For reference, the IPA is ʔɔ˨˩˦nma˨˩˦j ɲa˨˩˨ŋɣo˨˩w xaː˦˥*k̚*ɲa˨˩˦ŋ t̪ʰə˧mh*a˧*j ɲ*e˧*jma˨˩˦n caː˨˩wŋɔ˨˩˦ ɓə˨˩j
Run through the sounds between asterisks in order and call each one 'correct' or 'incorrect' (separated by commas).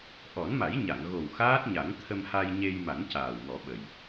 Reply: incorrect, correct, correct